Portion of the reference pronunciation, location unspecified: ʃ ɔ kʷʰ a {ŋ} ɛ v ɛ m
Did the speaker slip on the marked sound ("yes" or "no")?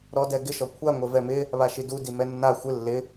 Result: yes